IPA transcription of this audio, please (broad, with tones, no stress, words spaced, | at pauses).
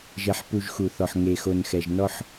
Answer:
ʒɛ˨ħpu˨ʒxu˨θɔ˨ħ ŋe˨xo˨nxɛ˨ʒ nɔ˦ħ